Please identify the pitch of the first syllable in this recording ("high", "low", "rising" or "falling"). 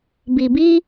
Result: low